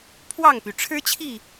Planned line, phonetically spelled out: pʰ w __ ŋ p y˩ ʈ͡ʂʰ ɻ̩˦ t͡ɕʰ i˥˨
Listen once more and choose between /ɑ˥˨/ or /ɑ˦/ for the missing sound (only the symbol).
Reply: ɑ˥˨